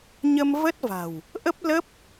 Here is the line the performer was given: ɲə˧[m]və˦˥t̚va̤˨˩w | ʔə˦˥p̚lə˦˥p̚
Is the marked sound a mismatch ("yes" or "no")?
no